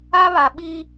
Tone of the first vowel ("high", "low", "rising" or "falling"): high